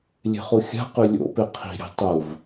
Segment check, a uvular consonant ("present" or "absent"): present